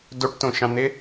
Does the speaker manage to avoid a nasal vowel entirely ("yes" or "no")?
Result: no